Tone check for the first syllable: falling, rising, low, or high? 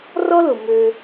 high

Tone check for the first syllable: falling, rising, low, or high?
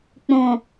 low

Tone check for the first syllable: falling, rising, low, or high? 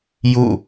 falling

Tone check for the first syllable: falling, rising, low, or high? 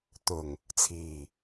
low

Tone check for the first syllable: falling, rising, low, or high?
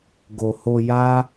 low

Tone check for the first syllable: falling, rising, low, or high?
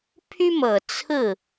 high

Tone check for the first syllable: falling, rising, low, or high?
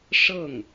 falling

